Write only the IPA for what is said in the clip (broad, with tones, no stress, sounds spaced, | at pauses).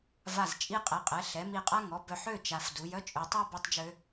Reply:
v a˧˩ z t͡ʃʼ i˦ qʼ ɛ˩˥ qʼ ɛ˩˥ ɬ ɛ˩˧ m i˧˩ qʼ a˦ ŋ ɔ˩˧ b œ˧˩ ħ ø˥˨ t͡ʃ a˩˧ f d u˩˧ j œ˦ t͡ʃʼ ø˩˧ tˤ ɛ˦ b i˦ tˤ d͡ʒ ø˦